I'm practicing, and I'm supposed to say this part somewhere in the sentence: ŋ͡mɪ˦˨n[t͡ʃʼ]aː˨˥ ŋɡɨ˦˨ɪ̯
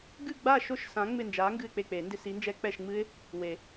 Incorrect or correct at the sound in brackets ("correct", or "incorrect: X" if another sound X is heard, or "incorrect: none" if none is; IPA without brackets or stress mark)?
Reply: incorrect: d͡ʒ